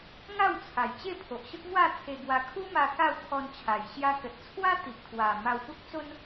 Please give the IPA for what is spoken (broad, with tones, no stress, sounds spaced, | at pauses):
ŋ a˥˧ w t͡sʰ a˨˩ j t͡ɕ e˥˧ pʰ o˨ ʔ ɕ ə˦ k̚ ŋ w a˥˧ t̪ʰ e˧ ɡ w a˧ kʰ u˦ m a˧ k a˥˧ w t̪ʰ ɔ˧ n t͡ɕʰ a˨˩ j ɕ j a˧ k ə˨ t̚ t͡sʰ w a˦ t̪ i˨ ʔ t̪ʰ w a˨˩ m a˧ w p u˦ k̚ t͡s o˦ n